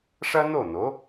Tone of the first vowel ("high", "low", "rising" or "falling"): high